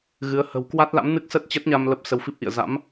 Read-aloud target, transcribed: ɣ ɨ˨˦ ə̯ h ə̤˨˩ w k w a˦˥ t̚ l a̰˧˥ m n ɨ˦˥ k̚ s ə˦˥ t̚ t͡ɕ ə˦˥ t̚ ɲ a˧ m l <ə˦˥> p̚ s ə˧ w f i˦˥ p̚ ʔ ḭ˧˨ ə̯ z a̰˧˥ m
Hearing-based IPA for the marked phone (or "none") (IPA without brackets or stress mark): ə˦˥